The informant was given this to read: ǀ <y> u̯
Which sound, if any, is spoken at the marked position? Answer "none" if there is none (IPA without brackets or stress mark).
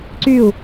y